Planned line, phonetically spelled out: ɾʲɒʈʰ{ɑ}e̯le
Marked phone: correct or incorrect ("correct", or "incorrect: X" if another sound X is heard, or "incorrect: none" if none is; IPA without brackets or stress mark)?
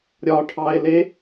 correct